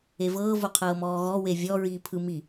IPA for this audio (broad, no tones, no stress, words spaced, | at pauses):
evɤː voqʰɤːmɔːɣɔ wevʲɔ ɹiːpʰɯ mi